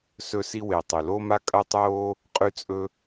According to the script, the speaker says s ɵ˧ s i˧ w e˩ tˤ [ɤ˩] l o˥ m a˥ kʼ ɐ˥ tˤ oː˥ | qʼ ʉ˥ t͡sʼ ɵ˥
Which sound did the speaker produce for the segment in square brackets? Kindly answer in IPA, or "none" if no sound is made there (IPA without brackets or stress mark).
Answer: ɵ˩